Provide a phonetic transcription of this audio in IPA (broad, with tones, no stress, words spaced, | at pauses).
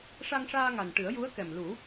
ʂa˧ŋʂaː˧ŋa˨˩n ʈɨ˨˩˦ə̯ ju˧˥ə̯kɛ˨˩mlu˨˩˦